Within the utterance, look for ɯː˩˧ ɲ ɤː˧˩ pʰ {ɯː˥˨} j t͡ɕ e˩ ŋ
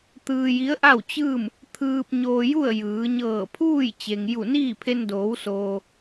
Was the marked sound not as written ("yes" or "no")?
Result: yes